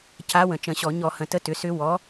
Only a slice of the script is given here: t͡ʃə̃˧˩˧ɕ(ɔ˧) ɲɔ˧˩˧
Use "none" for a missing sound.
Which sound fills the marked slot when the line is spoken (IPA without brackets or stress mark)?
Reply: ɔ˧˩˧